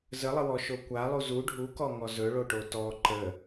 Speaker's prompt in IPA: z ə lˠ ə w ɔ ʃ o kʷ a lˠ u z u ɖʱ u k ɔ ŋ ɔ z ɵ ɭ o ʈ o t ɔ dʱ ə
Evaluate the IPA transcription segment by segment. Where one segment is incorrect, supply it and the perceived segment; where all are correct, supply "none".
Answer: dʱ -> ǃ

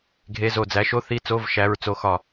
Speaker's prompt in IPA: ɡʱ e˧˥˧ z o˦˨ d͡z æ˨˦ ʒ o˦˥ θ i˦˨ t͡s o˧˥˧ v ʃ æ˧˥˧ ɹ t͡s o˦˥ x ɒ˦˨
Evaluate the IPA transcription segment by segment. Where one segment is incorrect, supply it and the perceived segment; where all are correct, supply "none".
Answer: ʒ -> ʃ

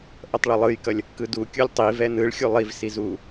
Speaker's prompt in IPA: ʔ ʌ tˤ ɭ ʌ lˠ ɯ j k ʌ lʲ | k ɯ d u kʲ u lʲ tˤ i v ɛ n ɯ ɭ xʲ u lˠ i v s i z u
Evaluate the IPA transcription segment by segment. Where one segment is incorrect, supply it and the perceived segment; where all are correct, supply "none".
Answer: none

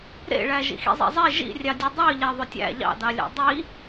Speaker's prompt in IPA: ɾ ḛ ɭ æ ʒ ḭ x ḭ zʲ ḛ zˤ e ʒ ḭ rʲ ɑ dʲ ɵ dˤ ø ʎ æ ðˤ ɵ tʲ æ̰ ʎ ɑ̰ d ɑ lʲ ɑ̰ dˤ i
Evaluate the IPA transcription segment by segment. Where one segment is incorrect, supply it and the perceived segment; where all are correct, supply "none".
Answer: zʲ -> zˤ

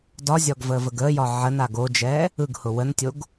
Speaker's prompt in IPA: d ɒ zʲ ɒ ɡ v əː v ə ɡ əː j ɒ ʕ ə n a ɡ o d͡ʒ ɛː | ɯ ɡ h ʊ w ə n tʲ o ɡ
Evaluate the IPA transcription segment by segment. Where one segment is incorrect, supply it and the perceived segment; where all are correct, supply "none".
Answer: none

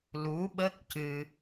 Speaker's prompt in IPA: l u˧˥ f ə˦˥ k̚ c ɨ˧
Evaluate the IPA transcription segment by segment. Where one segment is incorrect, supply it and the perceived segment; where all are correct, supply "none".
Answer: f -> ɓ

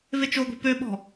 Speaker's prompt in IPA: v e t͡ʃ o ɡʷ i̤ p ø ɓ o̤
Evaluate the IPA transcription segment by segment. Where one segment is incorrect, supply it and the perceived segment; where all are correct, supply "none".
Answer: o̤ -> ɔ̤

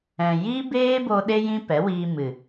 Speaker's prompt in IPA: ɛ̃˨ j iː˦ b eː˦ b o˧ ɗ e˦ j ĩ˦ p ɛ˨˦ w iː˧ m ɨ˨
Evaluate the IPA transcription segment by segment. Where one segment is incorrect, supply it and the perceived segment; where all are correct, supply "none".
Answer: none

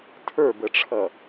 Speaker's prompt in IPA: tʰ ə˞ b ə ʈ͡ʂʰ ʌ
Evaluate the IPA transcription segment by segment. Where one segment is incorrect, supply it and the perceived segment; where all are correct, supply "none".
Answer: none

